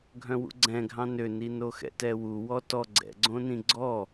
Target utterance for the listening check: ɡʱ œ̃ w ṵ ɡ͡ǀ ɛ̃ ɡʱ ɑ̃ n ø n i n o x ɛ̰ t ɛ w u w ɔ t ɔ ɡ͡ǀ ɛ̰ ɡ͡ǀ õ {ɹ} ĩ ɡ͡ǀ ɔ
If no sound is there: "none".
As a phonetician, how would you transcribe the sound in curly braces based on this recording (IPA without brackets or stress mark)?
n